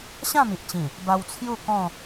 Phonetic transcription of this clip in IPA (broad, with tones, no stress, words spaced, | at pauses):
ɕã˥˧mi˨ʔt͡ɕĩ˨˩ | ba˧wt͡sʰju˥˧kɔ̃˥˧